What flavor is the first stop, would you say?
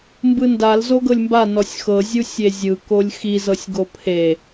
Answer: plain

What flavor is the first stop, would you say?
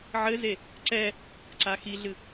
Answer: click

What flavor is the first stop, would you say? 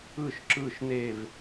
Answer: click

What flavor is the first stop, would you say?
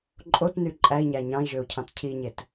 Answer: click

